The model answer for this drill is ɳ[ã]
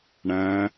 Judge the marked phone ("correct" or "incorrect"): incorrect